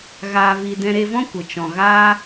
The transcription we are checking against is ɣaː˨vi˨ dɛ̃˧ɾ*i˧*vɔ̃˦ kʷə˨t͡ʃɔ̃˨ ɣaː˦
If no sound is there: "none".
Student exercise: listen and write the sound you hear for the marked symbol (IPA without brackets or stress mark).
e˧